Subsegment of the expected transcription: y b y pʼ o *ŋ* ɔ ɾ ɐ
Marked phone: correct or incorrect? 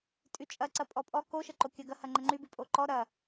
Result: incorrect